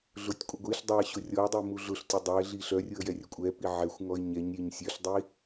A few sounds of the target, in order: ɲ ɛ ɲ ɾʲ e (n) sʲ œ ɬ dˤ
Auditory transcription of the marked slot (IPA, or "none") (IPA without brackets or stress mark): ɲ